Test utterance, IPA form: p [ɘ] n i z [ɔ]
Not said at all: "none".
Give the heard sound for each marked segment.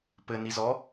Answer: ɘ, ɔ

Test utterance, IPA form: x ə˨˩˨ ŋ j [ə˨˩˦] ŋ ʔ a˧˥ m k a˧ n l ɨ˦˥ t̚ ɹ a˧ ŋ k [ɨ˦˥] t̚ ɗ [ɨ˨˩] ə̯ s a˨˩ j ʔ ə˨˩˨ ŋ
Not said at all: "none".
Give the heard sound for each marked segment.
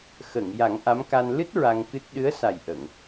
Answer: a˨˩˦, ɨ˦˥, ɨ˧˥

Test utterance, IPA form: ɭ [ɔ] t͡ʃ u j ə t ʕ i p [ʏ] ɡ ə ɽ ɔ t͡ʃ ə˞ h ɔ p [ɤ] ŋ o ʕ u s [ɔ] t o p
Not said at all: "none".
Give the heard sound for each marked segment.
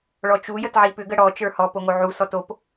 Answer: ɔ, ʏ, o, ɔ

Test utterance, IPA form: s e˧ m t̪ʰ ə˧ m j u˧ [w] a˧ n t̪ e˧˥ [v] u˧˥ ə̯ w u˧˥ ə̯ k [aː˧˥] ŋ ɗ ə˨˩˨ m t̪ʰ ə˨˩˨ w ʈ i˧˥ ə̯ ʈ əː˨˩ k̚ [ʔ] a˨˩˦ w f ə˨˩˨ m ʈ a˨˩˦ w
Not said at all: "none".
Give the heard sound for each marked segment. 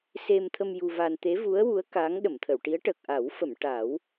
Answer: v, v, aː˧˥, ʔ

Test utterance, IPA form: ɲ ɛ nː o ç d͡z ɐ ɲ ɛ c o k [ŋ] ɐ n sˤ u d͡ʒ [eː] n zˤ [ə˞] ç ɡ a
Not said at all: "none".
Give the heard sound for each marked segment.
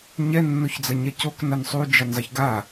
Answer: n, e, ɐ

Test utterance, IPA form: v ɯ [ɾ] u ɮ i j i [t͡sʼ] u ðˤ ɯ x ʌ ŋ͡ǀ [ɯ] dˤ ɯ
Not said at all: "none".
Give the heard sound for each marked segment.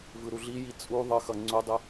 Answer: ɾ, t͡sʼ, u

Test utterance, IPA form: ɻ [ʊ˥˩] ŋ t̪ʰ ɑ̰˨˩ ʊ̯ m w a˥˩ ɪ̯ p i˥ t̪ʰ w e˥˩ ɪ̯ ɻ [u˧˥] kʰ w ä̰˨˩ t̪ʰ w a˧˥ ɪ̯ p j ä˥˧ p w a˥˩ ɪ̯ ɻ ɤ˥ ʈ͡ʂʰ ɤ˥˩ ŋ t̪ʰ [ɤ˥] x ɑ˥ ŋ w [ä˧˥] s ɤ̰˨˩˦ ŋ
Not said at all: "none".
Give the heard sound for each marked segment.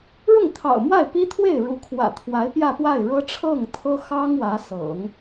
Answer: ʊ˥˩, u˧˥, ɤ˥, ä˧˥

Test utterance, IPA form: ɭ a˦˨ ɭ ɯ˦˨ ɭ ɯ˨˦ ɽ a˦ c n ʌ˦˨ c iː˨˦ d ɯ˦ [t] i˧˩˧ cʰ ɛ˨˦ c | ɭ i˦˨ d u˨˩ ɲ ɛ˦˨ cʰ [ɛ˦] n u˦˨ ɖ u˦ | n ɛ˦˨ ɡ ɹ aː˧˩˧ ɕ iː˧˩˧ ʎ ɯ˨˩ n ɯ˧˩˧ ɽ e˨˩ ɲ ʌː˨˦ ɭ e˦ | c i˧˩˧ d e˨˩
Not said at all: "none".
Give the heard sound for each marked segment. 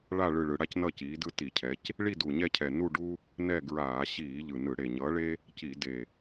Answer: t, ɛ˨˩

